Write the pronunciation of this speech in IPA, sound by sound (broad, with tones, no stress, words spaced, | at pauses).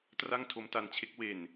tra˥˩ŋtʰo˦˥mta˧nt͡ɕʰe˦˥k̚ we˨˩n